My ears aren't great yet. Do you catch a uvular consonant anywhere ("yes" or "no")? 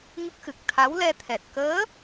no